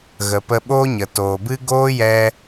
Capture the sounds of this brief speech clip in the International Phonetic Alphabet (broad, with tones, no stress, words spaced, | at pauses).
ɣə˨pə˧ɓoː˦ɲə˨ toː˨bɨ˦ ɡoː˦jɛ˧